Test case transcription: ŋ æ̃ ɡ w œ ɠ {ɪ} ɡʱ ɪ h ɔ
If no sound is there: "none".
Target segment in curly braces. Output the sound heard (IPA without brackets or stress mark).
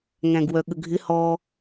ə